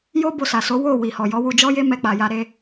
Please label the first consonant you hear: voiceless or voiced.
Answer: voiced